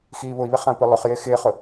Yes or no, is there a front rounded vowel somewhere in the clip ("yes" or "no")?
no